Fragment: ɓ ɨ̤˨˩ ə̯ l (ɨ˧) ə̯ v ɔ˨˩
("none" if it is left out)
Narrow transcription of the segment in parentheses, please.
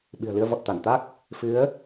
ɨ˧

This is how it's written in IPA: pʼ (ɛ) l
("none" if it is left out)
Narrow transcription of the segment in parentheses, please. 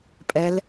ɛ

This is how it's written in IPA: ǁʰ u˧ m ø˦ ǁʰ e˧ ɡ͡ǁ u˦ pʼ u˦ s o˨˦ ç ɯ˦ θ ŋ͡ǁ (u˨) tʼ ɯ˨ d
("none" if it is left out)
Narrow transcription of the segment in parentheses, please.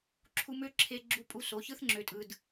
ø˨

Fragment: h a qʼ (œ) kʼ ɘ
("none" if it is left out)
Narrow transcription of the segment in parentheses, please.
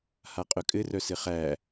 œ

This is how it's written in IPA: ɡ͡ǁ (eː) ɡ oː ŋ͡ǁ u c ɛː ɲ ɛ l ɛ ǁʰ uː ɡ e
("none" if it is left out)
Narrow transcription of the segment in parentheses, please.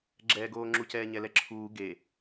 ɛː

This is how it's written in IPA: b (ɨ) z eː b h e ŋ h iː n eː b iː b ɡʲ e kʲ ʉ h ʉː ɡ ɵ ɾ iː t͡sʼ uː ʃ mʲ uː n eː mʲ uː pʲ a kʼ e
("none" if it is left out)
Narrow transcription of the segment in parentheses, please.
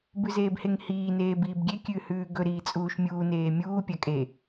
ʉ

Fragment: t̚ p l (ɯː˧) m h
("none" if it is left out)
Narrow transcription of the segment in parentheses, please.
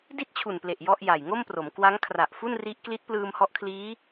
ɯː˧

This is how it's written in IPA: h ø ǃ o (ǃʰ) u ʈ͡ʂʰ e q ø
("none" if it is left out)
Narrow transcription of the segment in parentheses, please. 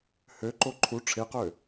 ǃʰ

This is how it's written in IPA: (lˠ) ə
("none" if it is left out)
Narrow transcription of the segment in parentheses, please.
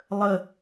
lˠ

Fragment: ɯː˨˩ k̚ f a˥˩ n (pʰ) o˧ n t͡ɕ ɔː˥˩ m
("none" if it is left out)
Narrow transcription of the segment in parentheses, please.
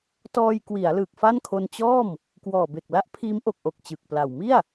kʰ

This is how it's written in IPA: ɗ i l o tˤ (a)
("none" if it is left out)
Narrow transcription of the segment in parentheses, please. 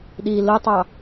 ɑ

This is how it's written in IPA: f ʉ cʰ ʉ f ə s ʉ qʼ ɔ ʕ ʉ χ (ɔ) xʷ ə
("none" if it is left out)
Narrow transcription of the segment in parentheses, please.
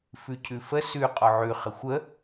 ə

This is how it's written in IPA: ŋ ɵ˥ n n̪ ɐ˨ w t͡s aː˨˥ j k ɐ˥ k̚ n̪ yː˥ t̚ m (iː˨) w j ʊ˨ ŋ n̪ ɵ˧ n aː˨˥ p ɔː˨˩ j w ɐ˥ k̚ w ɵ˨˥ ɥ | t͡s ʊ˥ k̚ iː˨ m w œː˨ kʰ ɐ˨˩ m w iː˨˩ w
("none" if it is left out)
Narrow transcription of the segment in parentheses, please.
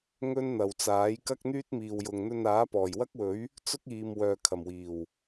iː˨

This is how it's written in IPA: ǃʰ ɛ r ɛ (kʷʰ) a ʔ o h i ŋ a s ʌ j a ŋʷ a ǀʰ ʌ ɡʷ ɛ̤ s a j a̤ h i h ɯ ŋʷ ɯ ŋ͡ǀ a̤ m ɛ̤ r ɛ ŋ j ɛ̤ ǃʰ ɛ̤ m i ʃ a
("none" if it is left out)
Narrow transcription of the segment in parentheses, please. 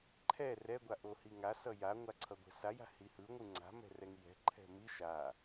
ɡʷ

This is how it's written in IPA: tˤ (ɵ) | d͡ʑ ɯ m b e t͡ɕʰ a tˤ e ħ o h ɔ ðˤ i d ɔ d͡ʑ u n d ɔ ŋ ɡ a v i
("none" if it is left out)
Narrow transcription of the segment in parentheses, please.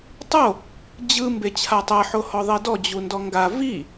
o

